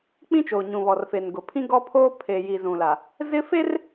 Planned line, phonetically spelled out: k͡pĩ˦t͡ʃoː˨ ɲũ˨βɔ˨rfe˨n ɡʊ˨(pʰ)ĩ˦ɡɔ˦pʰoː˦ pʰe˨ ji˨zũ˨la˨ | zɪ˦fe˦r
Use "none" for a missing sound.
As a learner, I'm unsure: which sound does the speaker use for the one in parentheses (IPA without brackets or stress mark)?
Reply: pʰ